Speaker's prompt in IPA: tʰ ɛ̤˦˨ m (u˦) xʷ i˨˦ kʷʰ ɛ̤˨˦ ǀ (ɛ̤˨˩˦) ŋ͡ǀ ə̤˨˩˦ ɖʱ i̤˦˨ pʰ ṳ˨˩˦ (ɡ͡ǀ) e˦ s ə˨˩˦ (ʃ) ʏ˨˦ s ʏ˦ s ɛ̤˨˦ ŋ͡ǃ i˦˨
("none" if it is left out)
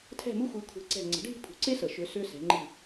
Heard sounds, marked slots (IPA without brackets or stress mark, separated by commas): u˦, ɛ̤˦˨, ǀ, ʃ